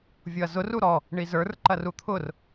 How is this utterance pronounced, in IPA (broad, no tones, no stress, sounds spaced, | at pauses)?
vʲ ʊ ɐ̯ z ʊ r u ɾ ɔ | ɳ i z ə˞ r ǃ ɐ r u t̪ʰ ʊ r